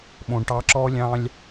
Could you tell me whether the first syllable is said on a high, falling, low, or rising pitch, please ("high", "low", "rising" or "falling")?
low